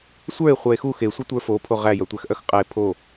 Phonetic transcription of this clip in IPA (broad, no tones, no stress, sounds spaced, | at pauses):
sʷ ə˞ e̯ χʷ œ e̯ x u x e sʷ ɘ tʷ ə˞ f o pʰ o ʁ æ j œ tʷ æ x ʔ œ x qʼ æ e̯ pʰ o